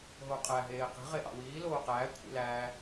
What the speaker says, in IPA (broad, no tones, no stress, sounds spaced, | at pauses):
ɦ o qʼ æ ɦ eː q i̤ ʁ e ʔ ɑ̰ w iː l oː q æː kʷʰ ḭ l æː